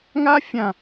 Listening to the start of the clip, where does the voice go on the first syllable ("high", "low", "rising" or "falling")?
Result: high